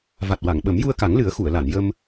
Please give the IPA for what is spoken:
v a˨˩ t̚ w a˨˩˨ ŋ ɓ ə˨˩˦ m j u˧ ə̯ k a˨˩˦ ŋ l ɨ˨˩˦ ə̯ x u˨˩˨ ə̯ l a˨˩˨ n j ə˧ m

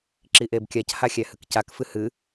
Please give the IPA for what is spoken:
ǁ i ʔ e b kʲ a c h a xʲ æ h ɨ k c a k f ɨ h ɨ

